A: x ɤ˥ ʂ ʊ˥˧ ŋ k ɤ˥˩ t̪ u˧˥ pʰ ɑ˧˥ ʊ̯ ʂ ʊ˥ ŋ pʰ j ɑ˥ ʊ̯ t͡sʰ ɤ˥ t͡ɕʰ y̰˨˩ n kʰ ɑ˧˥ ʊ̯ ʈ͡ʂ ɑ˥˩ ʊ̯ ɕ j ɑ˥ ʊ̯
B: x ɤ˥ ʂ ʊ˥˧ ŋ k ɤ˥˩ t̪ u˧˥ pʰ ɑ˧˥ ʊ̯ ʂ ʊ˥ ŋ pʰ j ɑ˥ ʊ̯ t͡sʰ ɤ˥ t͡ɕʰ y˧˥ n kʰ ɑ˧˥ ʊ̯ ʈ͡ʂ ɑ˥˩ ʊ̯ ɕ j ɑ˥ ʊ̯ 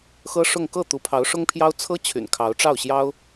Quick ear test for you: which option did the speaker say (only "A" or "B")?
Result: A